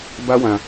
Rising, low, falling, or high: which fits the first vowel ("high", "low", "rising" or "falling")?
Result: high